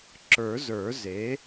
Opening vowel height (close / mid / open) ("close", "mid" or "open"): mid